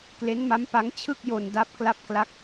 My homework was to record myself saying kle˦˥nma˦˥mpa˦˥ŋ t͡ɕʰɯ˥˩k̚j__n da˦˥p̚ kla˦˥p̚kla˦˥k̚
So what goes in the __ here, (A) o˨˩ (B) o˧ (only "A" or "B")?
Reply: B